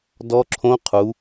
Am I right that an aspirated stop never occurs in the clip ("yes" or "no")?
no